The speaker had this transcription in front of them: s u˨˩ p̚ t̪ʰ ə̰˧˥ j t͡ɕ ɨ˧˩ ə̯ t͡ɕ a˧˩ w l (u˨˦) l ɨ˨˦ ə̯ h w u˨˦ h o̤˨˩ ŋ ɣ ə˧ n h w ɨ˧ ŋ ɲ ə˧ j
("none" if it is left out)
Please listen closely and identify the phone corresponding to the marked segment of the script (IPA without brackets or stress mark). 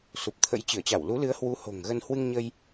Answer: u˨˦